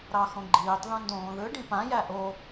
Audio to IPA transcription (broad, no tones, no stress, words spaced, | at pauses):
ɾɑxõɡ͡ǃiːtˤ ðõndõːðɯ ɖĩpã jæʔo